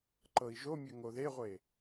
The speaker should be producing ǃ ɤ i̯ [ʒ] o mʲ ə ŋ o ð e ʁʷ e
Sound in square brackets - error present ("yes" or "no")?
no